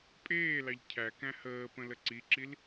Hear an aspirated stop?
yes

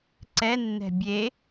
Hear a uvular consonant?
no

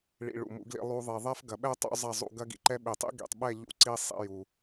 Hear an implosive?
yes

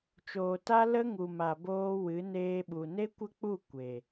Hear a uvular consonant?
no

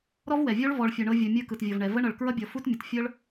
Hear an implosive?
no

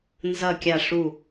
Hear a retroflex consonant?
yes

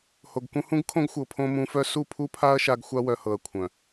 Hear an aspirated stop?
yes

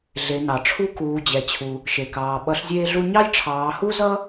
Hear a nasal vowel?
no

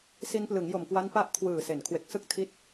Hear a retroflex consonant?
no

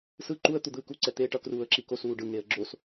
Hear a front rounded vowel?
no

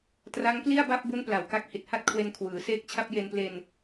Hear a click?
no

